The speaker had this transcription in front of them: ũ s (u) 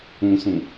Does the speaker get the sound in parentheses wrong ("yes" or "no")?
yes